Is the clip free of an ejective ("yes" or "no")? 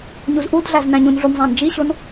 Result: yes